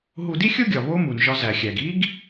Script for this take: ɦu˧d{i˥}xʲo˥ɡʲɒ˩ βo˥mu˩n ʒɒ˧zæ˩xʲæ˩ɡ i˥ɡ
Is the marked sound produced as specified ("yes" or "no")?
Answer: yes